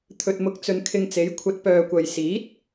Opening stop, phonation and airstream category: aspirated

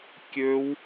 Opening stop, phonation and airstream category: plain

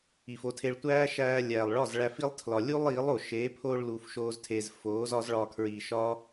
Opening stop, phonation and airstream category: aspirated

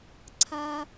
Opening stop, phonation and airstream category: click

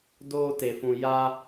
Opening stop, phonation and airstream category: plain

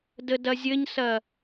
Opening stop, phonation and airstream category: plain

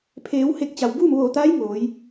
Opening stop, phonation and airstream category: aspirated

